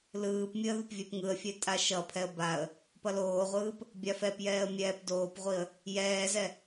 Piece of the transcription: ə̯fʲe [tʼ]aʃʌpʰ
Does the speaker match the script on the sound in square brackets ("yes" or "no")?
yes